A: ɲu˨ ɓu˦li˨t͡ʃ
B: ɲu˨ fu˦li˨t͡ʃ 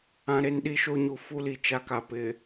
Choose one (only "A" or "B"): B